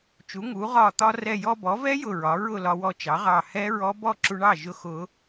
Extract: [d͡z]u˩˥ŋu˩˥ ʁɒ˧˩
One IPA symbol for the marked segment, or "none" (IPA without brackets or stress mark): t͡ʃ